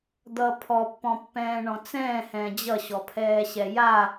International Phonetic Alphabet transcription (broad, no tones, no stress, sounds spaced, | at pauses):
d̪ ʌ pʰ ɔ pː ɔ̃ pː ɛ̃ː ɳ ɔ̃ t͡s ɛ̃ː h ɛ̃ː d͡ʑ ʌ ɕ ɔ pʰ ɛː ɕ ɛ j a